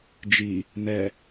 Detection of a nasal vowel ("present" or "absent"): absent